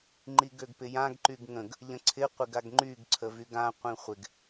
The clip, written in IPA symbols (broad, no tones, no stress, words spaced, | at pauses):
ŋ͡ǃiɡøɡpɪjãɡ ǃyɡŋə̃ɡ | ʎə̃ǀʰɪ qʷɪɡaɡŋ͡ǃyɡ ǀʰəvyɡã qʷĩχʷɪɡ